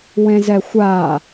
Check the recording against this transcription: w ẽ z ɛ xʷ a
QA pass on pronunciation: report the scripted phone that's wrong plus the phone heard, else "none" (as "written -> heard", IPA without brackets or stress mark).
none